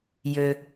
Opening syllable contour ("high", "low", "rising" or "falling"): low